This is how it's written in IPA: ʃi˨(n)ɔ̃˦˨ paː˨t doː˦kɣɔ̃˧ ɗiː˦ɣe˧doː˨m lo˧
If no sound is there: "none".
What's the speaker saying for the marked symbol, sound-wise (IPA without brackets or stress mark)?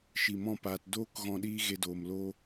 m